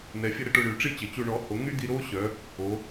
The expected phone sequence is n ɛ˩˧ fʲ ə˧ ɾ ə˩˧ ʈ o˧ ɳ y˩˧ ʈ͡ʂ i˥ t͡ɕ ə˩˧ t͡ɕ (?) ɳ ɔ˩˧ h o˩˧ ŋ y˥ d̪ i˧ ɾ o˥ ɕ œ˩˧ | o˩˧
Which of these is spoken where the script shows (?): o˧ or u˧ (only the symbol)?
u˧